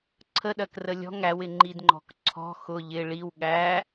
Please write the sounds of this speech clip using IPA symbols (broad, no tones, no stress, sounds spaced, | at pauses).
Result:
ǀʰ ə ɗ ɜ k r ə lʲ ɔ̤ ŋ æ w ɪ ŋ͡ǃ i d ŋ͡ǃ ɔ̤ k ǀʰ ɔ̤ x ʊ ʎ ɪ ɭ i w ɠ æ